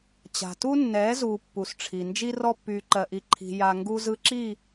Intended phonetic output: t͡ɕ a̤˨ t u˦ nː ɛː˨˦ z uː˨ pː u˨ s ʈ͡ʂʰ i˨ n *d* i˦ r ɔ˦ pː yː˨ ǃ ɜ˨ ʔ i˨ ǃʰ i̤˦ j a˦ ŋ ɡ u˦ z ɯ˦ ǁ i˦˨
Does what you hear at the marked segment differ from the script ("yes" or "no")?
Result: yes